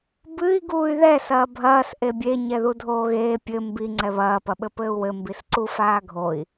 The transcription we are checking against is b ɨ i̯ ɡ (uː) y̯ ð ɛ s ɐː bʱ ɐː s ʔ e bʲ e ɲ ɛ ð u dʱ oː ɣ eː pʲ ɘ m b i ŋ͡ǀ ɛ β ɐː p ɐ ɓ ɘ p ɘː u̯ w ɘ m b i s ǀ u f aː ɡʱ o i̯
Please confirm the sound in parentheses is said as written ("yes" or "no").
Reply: yes